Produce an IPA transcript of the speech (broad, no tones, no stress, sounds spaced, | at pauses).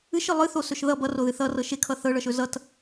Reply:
ɨ ʃ ɨ lˠ ɨ θ o s ɵ ʃ ð ʌ b ʌ r o ð ɨ θ ʌ r ɤ ʃ e kʰ ʌ θ ɤ ɭ ʌ ʃ ɵ z ʌ t